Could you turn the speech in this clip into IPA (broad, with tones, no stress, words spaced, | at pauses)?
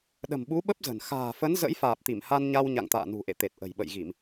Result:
ɗə̤˨˩mɓu˨˦ɓə˦˥p̚zə̤˨˩n xa̤ː˨˩fə˨˦n zə̰˧˥jfaː˨˩p̚t̪i˧˩mha˧n ɲa˧w ɲa̰˧˨ŋt̪a̰ː˧˨ nṳ˨˩ʔḛ˧˨t̪e˨˩t̚ ʔə̤˨˩jɓə̰˧˨jɣi˧˩˨m